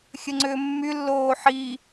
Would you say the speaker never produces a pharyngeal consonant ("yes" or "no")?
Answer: no